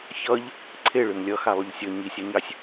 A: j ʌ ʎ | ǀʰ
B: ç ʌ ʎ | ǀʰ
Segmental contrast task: B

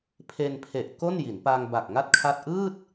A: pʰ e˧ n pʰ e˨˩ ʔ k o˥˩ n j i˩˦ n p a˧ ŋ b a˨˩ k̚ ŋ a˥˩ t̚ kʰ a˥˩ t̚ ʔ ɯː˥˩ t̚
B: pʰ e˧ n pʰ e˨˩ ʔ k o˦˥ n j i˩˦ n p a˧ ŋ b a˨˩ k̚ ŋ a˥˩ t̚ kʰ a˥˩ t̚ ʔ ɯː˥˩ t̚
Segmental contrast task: A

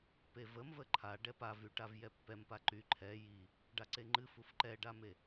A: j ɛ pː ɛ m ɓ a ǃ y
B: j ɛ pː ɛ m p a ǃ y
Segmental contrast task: B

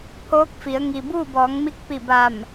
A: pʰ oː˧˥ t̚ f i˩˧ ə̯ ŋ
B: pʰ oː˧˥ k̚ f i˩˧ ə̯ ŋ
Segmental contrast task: B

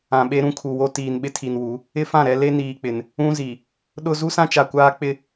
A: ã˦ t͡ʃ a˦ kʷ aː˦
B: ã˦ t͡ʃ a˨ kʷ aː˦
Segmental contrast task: B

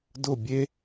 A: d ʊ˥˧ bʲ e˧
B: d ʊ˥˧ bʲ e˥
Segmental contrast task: B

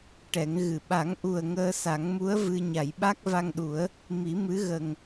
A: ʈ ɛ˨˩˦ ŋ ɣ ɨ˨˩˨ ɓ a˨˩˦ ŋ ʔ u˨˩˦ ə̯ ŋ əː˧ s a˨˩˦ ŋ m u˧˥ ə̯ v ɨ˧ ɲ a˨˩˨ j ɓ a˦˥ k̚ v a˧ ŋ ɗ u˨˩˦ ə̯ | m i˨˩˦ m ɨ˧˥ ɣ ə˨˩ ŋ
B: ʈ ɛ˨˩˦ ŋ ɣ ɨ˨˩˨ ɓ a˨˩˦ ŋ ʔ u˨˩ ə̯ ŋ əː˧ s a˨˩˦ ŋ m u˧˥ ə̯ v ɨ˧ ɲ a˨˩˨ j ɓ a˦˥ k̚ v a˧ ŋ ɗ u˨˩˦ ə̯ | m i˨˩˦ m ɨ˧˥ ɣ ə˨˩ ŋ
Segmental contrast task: B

